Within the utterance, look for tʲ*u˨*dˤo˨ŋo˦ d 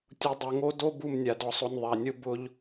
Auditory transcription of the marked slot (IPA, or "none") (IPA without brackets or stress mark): u˨